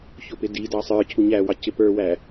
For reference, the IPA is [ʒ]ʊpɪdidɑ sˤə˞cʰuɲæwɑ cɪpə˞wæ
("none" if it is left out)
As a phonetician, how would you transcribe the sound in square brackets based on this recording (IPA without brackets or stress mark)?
ç